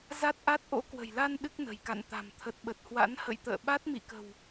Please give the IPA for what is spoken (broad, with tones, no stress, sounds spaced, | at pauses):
z a˦˥ t̚ ʔ a˦˥ t̚ ʔ o̰˧˥ k w ə̤˨˩ j l a˧ n ɗ ɨ˦˥ k̚ n ə̤˨˩ j k a̰˧˨ n t̪ a̤˨˩ m t̪ʰ ə˨˩ t̚ ɓ ə˨˩ t̚ h w a̰˧˥ n h ə̰˧˨ j t̪ ə̰ː˧˨ ɓ a˦˥ t̚ m ḭ˧˨ k ə̤˨˩ w